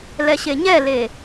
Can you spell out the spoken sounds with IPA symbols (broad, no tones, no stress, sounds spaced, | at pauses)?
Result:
l ɛ ɕ e ɲ ɛ l e